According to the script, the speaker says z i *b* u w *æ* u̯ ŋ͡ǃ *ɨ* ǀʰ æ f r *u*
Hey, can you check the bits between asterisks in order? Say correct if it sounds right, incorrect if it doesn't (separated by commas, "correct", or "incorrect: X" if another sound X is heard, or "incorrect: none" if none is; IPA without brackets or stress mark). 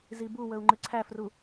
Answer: correct, incorrect: ə, correct, correct